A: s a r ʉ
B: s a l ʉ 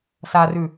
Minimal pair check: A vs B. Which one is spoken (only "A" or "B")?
A